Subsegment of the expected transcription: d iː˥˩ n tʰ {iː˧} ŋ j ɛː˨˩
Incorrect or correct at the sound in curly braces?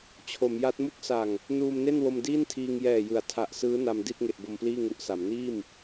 correct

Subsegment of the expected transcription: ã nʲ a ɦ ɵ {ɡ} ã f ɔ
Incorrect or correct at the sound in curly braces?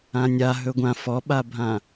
incorrect: ɡʷ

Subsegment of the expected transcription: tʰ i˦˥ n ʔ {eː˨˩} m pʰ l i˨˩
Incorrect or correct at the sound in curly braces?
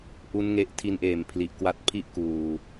correct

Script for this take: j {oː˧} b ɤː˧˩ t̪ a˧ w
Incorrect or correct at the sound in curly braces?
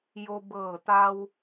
incorrect: o˧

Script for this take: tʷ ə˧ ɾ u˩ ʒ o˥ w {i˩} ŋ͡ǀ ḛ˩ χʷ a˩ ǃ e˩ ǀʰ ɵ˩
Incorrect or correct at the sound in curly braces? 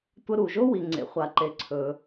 correct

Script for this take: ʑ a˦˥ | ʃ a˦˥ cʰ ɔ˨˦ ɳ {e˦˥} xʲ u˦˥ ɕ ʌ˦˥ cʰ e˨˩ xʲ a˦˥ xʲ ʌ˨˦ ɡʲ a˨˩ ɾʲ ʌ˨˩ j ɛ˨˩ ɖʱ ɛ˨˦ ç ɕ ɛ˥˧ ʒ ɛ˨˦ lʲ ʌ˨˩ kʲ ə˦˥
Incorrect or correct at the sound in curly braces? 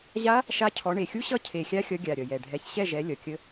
incorrect: e˨˩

